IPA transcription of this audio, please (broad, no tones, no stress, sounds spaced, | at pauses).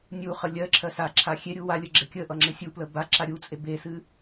nʲ u χ ə lʲ ɜ ǁʰ ɜ s a ǁʰ a xʲ e ɾʲ u w a lʲ ə ɡ͡ǁ ɪ kʲ ə ʔ ʌ ŋ͡ǁ ɪ sʲ u p l ə b a ǁ a ɾʲ u t͡sʼ e b e s ɨ